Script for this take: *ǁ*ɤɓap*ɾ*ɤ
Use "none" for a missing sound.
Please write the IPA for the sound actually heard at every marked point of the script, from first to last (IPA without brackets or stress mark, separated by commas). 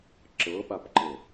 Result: ǁ, ǃ